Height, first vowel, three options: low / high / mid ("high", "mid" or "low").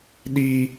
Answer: high